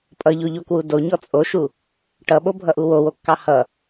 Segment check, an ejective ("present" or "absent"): present